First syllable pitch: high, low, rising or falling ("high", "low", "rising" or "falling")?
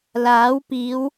rising